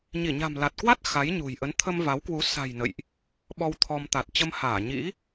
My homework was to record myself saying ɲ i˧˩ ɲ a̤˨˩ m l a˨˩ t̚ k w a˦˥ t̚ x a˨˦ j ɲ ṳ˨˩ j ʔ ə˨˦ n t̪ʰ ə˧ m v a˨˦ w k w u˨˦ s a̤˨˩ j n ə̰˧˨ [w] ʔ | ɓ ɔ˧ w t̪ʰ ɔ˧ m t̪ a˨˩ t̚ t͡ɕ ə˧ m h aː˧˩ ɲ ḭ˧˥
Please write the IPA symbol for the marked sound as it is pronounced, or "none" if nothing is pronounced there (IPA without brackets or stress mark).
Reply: j